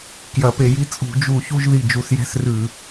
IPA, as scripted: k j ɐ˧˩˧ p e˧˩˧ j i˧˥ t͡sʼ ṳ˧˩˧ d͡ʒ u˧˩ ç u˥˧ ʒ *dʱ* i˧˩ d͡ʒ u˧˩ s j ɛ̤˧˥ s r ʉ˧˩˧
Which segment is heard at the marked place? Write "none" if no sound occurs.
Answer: ð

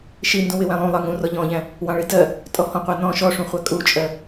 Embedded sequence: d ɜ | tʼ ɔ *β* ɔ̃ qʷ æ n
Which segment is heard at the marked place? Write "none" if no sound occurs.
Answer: h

